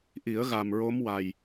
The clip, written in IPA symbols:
ʔi˨˩˦ə̯ ɣa˨˩mɹo˧˥mwa˨˩j

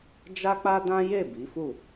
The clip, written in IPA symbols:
d͡ʒa˦k͡pa˦dã˦je˦˨ bi˨˦fu˦˨

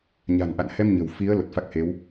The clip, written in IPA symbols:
ɲa̤˨˩nʔa̰˧˨nhɛ˧m ɲə̤˨˩w fi˨˦ə̯ lo˨˩t̚fa˦˥k̚he˨˦w

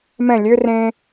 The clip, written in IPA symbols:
mɛ̃ lʲø rẽ

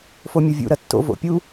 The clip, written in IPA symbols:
fomʲovʲṵ ɾɐtːo̰ vo̰pʲu

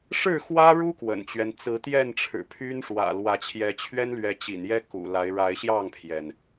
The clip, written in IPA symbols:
ʂɻ̩˥˨xwä˦ɻu˦ kwə̰˨˩nt͡ɕɥɛ˦n t͡sɹ̩˨˦t̪jɛ˥˨nʈ͡ʂʰɻ̩˨˩pʰy˦n ʂwä̰˨˩lwä˨˦t͡ɕʰjɛ˨˦ t͡ɕʰɥɛ˦nlɥɛ˨˦ t͡ɕḭ˨˩njɛ˦ kṵ˨˩ la˨˦ɪ̯ɻa˨˦ɪ̯ ɕjɑ˥˨ŋpʰjɛ˩n

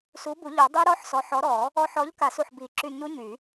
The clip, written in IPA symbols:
su˨˥bu˨˩˦ʎɔ˨˩˦ dˤi˦˥ɾɔ˦˥ħsɔ˨˥ ħɔ˨˥ɾɔ˨˩˦ | ɔ˧ħɔ˨˥ʎ ka˨˩˦su˧˩ħ bi˨˩˦ǁy˧˩ ɲu˦˥ɲy˨˩˦

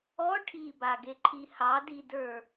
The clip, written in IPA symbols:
ɔ ʈʰibaɡeǃʰi hɑdidə˞

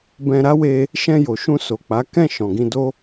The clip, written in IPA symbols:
bɛ̃˧ɾa˦we˧ | ʃɛ̃˧jo˨ ʃũ˧so˨k͡pa˨˦ kɛ̃˦˨ ʃɔ̃˨ɡĩ˧do˦

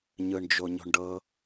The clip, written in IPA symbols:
ɲɯɳd͡ʒoɲo̤ɳɖɤ

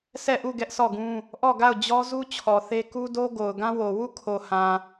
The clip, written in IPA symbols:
sʰɛ˦˨ʔu˦˨ ɡɛ˦ʔsɔ˦˨ɡũ˦ | ʔɔ˦˨ɡa˦˨ʊ̯d͡ʑɔ˦zu˦ t͡ɕʰɔ˨θe˦ ku˦ do˦ ɡo˨ʊ̯ɡã˦wo˨ wu˦˨kʰo˨hã˨

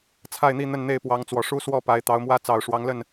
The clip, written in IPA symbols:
t͡sʰa˥˨ɪ̯n̪i˥˨ n̪ə˥˨n n̪e˥˨ɪ̯pwɑ˨˦ŋt͡swɔ˨˩ʂu˦ swɔ˥˨pa˨˦ɪ̯ t̪ɑ˨˦ʊ̯mwä˦ t͡sɑ˨˩ʊ̯ʂwɑ˨˦ŋ lə˥˨n

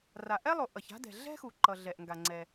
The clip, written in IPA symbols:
ra˩ʔɛ˥lˠo˩ ʔʌ˩ça̤˥dɛ̤˩ ɮɛ̤˥xu˩ ǃʌ˩ ɮɛ˩ʔŋɡa˩ŋ͡ǀɛ˩

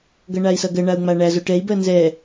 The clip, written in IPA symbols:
ɡʌɳai̯sʌɡɜ ɳau̯ŋ͡maɳæ zoʈɛi̯ bɜnzɛ

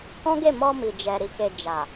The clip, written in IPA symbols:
kɔ̃˦ɡe˦˨ mɔ˧mi˨d͡ʒɛ˨ ɾi˧ke˧ d͡ʒa˨

